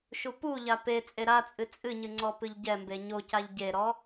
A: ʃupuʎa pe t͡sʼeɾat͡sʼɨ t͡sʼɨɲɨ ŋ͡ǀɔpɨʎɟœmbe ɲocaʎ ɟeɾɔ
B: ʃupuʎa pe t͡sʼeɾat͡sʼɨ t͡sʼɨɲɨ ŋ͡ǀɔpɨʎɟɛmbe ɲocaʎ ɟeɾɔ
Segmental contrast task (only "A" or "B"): B